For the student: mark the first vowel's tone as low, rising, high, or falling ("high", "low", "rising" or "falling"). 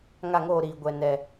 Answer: falling